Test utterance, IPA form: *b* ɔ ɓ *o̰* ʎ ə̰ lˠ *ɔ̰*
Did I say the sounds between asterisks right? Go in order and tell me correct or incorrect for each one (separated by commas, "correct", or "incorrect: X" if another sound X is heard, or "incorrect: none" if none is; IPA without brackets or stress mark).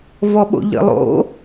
incorrect: v, correct, incorrect: o̰